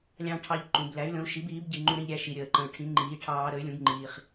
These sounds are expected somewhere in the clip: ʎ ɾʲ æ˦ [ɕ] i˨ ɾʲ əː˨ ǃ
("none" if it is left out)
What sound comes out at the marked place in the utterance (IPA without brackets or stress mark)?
ʃ